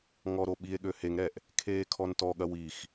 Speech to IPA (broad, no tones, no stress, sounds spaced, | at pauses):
ŋ ɔ ɾ o ɓ i e̯ ɠ ø h e ŋ ɾ ɛ ʔ | kʰ eː kʰ ɔ n t ɔ ɠ ɐ w i x